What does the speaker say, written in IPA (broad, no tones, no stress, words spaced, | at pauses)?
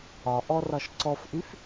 ɒʔɔ rɒʃǀɔfʔyf